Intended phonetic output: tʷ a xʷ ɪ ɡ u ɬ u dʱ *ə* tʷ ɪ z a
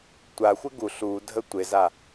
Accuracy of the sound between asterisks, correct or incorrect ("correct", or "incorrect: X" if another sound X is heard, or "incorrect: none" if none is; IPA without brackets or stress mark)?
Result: correct